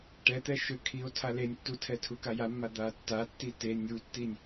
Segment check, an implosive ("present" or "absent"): absent